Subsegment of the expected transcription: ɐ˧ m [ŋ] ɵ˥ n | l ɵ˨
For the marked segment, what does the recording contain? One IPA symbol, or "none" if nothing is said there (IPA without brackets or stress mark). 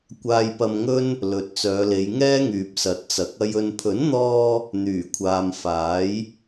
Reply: ŋ